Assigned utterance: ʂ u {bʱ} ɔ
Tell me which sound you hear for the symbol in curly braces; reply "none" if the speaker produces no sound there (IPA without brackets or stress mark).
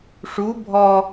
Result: bʱ